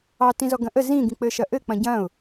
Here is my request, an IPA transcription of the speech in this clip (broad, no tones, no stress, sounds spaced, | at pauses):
ɑ t ĩ z ɔ ɡ ɐ̃ ʔ ə z ĩ ɡ ĩ k͡p ɘ ʃ ɐ ʔ ɘ k͡p ɐ̃ ɟ ɐ̃ ʊ̯